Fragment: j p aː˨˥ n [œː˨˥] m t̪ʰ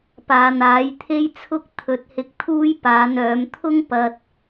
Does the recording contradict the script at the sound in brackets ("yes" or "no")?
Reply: no